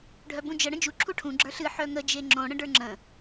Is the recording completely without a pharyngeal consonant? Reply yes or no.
no